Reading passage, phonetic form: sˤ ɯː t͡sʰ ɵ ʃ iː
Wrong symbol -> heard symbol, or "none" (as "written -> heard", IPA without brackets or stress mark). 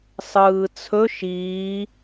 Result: none